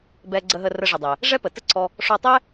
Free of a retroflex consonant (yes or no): no